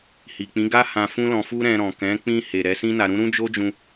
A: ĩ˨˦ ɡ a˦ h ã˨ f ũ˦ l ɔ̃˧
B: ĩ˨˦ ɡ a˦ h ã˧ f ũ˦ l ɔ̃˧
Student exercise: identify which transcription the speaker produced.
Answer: B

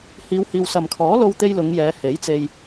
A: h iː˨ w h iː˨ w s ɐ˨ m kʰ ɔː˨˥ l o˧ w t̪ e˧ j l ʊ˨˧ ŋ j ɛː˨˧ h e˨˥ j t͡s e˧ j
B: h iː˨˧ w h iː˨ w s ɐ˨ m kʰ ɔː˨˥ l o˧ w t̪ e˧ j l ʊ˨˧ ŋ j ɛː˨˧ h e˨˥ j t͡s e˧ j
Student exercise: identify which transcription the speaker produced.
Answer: B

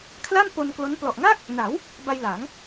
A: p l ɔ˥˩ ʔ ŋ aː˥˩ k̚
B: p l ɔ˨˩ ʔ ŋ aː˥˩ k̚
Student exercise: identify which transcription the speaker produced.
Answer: B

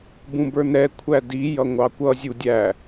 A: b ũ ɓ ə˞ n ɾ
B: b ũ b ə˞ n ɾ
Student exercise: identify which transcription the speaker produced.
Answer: B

